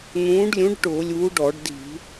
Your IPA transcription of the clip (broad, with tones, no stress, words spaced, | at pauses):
n̪ũː˨˥ɖlʲũ˨˥ɖ ʈʊː˧˩˧lʲuː˨˥ɖɔ˧˩˧ɖdi̤˧˩˧